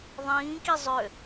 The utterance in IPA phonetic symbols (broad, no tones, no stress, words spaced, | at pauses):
ðˤĩːki zˤø